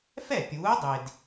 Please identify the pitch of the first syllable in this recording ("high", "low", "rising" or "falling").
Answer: falling